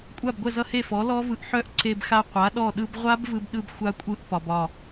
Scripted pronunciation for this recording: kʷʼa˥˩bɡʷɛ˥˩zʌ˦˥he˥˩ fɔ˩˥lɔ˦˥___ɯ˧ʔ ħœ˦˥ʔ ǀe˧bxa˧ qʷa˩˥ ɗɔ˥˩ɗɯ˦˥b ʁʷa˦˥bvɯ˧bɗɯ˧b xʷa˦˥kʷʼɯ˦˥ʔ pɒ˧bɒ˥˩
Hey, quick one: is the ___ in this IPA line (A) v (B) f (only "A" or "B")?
A